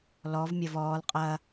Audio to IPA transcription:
l ɔ v mʲ ɐ v ɔː l qʼ ɐ

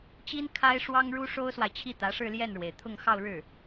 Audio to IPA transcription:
t͡ɕ i˥ n kʰ a˥ ɪ̯ ʂ w ɑ˥ ŋ ɻ u˥ ʂ o˥ ʊ̯ s w a˨ ɪ̯ t͡ɕʰ i˥˩ t̪ ä˧˥ ʂ ɻ̩˥˧ l j ɛ˥˩ n ɻ w e˩ ɪ̯ t̪ʰ ʊ˥˧ ŋ x ɑ˥˧ ʊ̯ ɻ ɻ̩˥˩

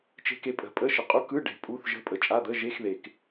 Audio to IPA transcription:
t͡ʃ e̤˨ k e˨ pʼ ə̤˨ pʼ ə˧˥˧ ʃ ə˨ qʼ u˧˥˧ k ɯ˧˥˧ ɖ e̤˨ pʼ u˧˥˧ θ ʒ ə̤˧˥˧ pʼ ə˨ t͡ʃʼ a˧˥˧ d̪ ə˧˥˧ ʒ e˧˥˧ x ð e˨ k

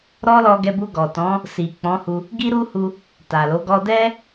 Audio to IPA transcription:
ɾ ɔ˦ l ɔ˧ ɡ ɛ˧ b u˧ ɡ ɔ˨ t ɔ̃˨˦ | s i˨ k͡p ɔ̃˨˦ h u˧ | ɡ i˦ ɾ u˦ h u˧ | t a˨ l o˨˦ ɡ ɔ˧ d ɛ˦

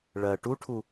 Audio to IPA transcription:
ɭ ɜ ʈ u ʈʰ u

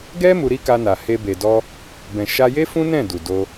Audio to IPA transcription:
ɡ ɛ˦ m u˧ ɾ i˦ k a˧ n a˨ h e˧ b e˨ d ɔ˧ | b ɛ̃˨ ʃ a˧ j e˦ f ũ˦ n ɛ̃˦˨ d u˨ d o˧

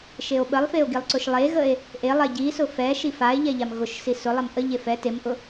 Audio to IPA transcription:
ʃ e o̯ ɓ ə lˠ f e o̯ ɡ i lˠ ǀ ʊ ʃ lˠ e ɣ ə e̯ | ʔ e lˠ ɛ ɟ i s ʊ f ɛ ʃ i f a e̯ ʎ ɛ ʎ a m ɣ ʊ ʃ s i s ʊ lˠ ɛ m ʔ ə ʎ e f ɛ t e m ʔ ʊ

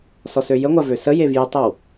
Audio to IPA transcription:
s ɔ s ø j ə ŋʷ a v ø s ə j e v j ə tˤ ə w

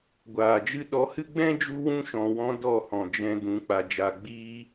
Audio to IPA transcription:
ɡʷ aː˨ d͡ʒ ɨ˧ ɗ ɔ˨˦ h ɨ˦ ɡ͡b ɛ̃˦ d͡ʒ u˦ w ũ˦ ʃ ɔ̃˨ w ɔ̃˧ d ɔ˦˨ h ɔ̃˨ d͡ʒ ɛ̃˧ d ũ˨˦ k͡p a˨ d͡ʒ a˨ ɡ͡b iː˧

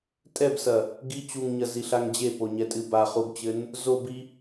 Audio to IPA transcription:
tʼ ɛ b s ɐ | ɡ i t͡ɕ u ŋ ɲ ɐ z i ɬ a ŋ d͡ʑ e p o ɲ ɛ tʼ ɨ b a χ u ɡ t͡ɕ ɘ n | z o b i

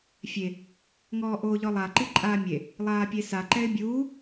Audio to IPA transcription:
fʲ e | ŋ ɔː ʔ oː ʎ ɔ lˠ a ǃ i ǃʼ aː mʲ e | lˠ aː pʲ e s a ǃ ɛ ɪ̯ bʲ uː

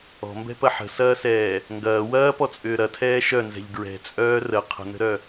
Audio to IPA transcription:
ɔ̤ m b ɛ̤ p ɐ ħ ə̤ s ɐː s ɛː | ŋ ɡ ɐː w ɐː p ɔ t͡sʼ ʏː ɾ ɐ tʰ ɛː ʃ œ n z ɛ̤ ʎ ɡ ɹ ɛ̤ t͡sʼ œː r ə qʰ ə̤ n ə̤ ɾ œ

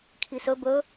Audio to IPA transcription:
kʰ i s ɵ b ɵ

